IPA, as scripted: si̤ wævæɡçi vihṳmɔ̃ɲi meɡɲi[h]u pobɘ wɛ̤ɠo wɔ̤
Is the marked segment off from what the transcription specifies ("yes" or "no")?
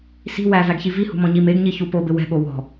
yes